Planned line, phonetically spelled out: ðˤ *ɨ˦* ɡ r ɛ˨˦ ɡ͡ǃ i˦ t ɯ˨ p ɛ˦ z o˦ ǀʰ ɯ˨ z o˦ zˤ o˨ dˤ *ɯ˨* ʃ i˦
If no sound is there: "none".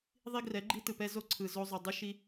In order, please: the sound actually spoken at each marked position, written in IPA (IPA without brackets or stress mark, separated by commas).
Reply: i˦, ɯ˦